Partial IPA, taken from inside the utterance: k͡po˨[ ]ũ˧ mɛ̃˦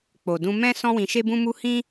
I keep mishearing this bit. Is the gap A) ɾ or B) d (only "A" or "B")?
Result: B